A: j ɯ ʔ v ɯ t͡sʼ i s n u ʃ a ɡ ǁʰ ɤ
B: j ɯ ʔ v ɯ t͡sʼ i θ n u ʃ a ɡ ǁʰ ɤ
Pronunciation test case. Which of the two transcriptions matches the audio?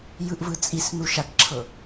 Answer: A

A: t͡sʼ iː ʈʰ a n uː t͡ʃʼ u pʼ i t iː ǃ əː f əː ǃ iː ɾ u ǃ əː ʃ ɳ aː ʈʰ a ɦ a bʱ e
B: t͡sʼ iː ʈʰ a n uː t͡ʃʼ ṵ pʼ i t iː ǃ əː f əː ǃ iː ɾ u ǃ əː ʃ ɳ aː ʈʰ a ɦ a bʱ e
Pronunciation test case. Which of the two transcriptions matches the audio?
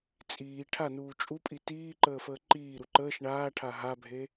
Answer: A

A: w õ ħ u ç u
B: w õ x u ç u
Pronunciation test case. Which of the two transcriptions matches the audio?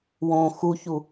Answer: B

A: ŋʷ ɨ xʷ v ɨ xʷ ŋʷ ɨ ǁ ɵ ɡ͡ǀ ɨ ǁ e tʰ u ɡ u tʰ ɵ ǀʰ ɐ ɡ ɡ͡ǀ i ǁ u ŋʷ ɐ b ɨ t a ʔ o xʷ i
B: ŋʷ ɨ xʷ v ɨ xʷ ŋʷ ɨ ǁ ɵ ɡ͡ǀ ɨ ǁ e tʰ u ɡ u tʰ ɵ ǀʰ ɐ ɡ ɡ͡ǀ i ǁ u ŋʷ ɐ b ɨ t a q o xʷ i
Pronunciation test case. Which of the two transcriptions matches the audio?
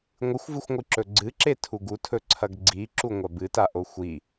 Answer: A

